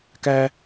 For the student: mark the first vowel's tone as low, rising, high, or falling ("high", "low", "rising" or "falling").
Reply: high